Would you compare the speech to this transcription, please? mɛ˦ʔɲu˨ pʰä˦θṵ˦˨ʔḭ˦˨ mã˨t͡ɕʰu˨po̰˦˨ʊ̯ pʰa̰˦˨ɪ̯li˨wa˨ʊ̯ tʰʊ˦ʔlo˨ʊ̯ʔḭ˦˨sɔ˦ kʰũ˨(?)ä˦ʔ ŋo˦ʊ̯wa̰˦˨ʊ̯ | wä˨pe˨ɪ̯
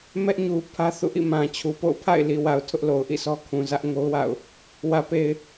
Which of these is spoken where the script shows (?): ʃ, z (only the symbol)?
z